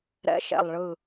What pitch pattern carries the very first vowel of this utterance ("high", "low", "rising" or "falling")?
rising